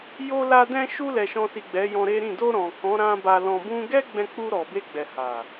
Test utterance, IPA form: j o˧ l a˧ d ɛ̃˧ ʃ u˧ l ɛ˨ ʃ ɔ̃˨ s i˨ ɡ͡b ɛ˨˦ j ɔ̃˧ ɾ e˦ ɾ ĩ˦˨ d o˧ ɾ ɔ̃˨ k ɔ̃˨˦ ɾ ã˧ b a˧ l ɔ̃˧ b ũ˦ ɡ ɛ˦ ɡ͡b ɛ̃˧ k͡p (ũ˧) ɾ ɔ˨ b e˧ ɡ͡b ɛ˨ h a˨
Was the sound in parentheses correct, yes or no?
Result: no